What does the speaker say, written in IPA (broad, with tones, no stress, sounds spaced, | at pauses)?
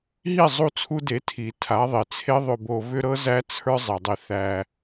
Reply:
ɦ i˦˨ zˤ u˦ t͡sʰ u˦ d e˨˦ tʰ i˨ tʰ a˨˦ ðˤ i˨ t͡sʰ e˦ ðˤ ʏ˧ b o˧ v ʏ˦ ɾ ɤ˦ z æ˦ t͡sʰ ə˞˦ zˤ e˨ dˤ i˧ θ æ˧